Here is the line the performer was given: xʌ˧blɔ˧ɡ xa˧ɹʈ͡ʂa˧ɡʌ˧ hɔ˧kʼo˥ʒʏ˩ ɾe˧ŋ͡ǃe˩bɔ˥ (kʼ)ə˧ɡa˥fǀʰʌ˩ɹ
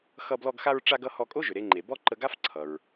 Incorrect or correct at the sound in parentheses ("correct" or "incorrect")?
incorrect